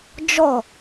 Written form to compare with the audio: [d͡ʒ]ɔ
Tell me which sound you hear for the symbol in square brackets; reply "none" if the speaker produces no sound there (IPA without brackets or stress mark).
d͡ʒ